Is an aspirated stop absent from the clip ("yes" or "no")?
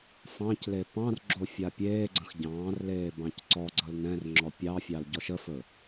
yes